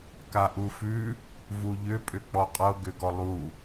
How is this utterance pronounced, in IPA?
kaʔufʉ | vuʎʏ pʼʏk͡pɔqʼɤ ɡʏɡɔlˠu

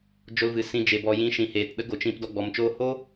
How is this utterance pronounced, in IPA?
d͡ʒo˧lvɨ˨ sĩ˧d͡ʒe˨ bɔ˨jĩ˨˦ ʃĩ˨heː˨tɗə˦ ɡo˨t͡ʃĩ˧p dɔ˧ɡ͡bɔ˨mt͡ʃoː˦ ho˦

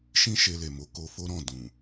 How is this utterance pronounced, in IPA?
ʃĩ˦ʃe˧le˨mo˨˦ ko˧fo˦ɾɔ̃˦˨ dũ˨

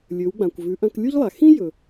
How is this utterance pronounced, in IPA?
lʲɵ˩˧wɡ͡bã˩kʷ vʉ˩˧ʔɐ̃˧klʲu˥ʎlˠa˩ xĩ˥ jɵ˩

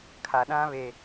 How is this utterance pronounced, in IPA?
kʰa˨ɗã˦βe˨

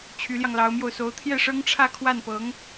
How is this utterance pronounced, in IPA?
t͡ɕʰy˧˥ljɑ˧ŋlɑ˧˥ʊ̯mjo˧ʊ̯ so˧˥ʊ̯ t̪ʰjɛ˥˩ʂɤ˥ŋʈ͡ʂʰä˥˧ kʰwa˥˩npɤ˧˥ŋ

